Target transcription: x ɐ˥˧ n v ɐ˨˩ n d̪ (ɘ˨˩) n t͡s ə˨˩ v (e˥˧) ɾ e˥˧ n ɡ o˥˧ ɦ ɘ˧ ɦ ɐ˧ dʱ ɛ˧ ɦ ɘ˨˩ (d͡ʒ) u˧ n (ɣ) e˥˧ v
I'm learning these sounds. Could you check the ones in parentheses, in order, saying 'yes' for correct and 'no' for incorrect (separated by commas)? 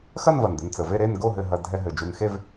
no, yes, yes, no